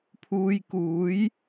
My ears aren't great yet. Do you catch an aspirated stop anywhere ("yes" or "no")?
yes